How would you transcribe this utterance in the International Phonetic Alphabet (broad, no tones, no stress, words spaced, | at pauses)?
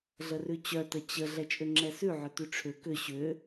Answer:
ɮərʉt͡ɕœ tət͡ɕə ɮɛt͡ʃʼʏŋ͡ǁɛsʉ ʕʏtʉʈ͡ʂʰʏ kʏ ɕʏ